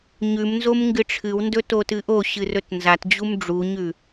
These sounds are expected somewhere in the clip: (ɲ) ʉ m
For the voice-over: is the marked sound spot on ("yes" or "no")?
yes